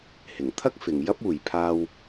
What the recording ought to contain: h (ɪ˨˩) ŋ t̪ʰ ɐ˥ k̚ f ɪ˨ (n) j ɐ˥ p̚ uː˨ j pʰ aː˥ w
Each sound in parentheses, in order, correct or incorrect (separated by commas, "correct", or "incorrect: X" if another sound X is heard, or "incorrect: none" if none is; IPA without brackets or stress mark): correct, incorrect: ŋ